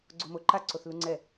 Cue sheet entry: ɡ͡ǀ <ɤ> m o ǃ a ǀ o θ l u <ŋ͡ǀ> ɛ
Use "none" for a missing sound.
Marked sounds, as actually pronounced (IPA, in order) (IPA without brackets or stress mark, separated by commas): o, ŋ͡ǀ